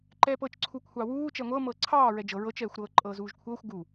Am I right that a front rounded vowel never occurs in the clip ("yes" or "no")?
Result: yes